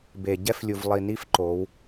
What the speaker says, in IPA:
b e˨ ɟ ɛ˦ f lʲ u˨ v lˠ i˨ n i˦ f ǃ o˨˦ w

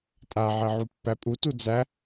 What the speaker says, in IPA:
tʼ a ʕ e ʕ u pː æ pʼ u t u d͡z æ

